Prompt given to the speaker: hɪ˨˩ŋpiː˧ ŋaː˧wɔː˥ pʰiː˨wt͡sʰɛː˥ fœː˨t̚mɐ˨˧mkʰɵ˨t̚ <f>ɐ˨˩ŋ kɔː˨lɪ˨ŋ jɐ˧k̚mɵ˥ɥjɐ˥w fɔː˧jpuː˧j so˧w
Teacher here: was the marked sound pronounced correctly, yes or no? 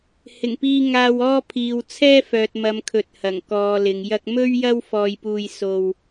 no